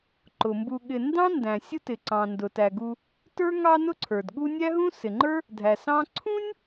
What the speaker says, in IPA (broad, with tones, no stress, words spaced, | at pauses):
ǃʊ˩mbu˨ɠɪ˨ndɑ̃˥ ndæ̃˩sʲʊ˦tɪ˩ ǀɑ̃˩ ndʊ˩tæ˩ɡu˨ | tə˞˥ ŋɑ˦nʊ˦ǀʰə˞˩d ɠu˦nʲæ˥ɦũ˥ sɪ˩ŋ͡ǃə˞˥ | dʱæ˩sɑ̃˦ ǀʰũ˥nʲ